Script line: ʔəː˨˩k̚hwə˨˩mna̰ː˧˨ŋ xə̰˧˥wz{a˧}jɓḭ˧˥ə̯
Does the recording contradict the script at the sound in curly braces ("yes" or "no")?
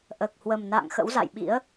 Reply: yes